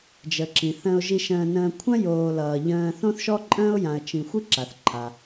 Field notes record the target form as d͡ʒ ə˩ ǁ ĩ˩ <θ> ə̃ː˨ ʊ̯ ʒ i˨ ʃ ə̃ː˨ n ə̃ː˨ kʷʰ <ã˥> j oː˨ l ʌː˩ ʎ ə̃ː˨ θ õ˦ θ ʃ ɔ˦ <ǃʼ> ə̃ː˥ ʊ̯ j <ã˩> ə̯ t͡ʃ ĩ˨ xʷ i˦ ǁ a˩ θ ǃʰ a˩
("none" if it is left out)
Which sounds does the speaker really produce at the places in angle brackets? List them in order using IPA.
θ, ã˥, ǃʼ, ã˨

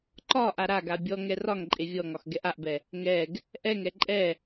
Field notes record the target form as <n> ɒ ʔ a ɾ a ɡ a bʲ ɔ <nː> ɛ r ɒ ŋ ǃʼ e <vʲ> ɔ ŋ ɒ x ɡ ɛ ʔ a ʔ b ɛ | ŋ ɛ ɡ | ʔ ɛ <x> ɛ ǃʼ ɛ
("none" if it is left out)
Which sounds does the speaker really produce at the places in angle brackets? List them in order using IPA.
ǃ, ŋ, vʲ, ŋ

